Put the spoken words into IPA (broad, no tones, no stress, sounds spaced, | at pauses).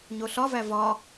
ɲ o ɬ ɒ v æ v ɒ